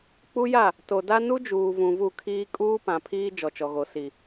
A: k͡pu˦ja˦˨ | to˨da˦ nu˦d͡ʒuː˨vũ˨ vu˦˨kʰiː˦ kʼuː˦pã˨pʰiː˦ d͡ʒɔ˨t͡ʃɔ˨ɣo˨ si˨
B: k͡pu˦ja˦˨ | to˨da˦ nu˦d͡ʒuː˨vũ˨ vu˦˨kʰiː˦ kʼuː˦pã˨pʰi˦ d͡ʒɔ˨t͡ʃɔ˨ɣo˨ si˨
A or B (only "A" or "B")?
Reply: A